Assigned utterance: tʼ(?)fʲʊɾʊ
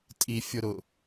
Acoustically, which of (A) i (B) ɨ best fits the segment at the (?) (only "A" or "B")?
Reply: A